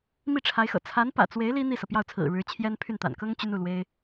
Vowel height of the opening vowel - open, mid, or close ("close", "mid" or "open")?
close